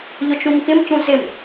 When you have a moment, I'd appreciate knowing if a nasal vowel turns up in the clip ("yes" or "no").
yes